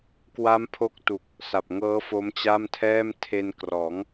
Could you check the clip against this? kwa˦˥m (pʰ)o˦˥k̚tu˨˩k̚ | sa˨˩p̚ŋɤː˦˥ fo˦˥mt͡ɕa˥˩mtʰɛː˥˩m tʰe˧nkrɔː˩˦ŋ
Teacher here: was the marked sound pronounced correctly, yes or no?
yes